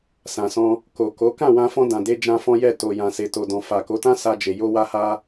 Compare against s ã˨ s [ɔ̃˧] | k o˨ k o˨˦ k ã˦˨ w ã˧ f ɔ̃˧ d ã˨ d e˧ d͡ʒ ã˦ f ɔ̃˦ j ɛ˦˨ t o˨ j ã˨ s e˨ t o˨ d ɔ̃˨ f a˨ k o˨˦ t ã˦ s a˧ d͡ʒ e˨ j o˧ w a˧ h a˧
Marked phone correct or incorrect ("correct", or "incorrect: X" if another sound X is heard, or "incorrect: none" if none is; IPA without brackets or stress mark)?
correct